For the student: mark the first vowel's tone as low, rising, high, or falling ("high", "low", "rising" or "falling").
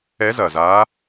rising